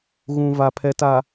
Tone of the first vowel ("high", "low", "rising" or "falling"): low